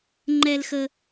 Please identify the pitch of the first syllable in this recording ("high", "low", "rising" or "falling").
low